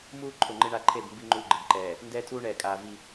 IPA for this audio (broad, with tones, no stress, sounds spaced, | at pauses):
m uː˦ ǃʰ ʊ˨ ŋ͡ǃ ɪ˦ ɳ a˦ ǃʰ e˦˨ b m b i˦ ŋ͡ǃ uː˦ ɡ͡ǃ ɪ˨ b ǃ ɛː˨ | n d ɛː˦ tʰ uː˦ ɳ ɛː˨ kʼ aː˨ v i˦